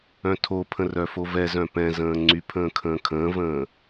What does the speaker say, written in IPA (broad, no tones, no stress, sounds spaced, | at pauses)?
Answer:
œ̃ tʰ o pʰ ə̃ r œ f o v ɛ z œ̃ p ɛ̃ z ə̃ː ŋ͡ǀ y pʰ ə̃ː kʰ ə̃ː kʰ ə̃ː v ə̃ː